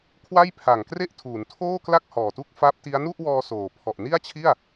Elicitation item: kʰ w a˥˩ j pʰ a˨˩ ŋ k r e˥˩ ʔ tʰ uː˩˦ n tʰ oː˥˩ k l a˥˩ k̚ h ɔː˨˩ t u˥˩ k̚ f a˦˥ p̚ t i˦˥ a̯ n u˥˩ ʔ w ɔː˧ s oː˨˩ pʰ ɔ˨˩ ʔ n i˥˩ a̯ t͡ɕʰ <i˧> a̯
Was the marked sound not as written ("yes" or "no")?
yes